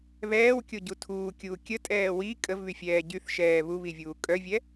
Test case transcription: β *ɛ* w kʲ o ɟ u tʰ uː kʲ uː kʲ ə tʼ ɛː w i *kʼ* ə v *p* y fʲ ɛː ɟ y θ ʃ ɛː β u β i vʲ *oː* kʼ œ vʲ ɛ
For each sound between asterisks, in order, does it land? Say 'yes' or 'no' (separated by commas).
no, yes, no, no